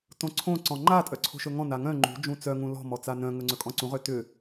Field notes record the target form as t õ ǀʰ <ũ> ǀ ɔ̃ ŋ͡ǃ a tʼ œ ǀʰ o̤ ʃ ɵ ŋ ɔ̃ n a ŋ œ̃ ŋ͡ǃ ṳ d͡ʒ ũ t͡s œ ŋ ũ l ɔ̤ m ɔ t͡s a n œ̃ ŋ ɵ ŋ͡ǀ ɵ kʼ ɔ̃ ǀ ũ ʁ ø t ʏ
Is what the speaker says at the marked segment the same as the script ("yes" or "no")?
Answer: no